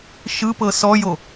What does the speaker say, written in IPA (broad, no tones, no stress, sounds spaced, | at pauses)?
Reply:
ʃ ɯ p ɤ s ɔ j o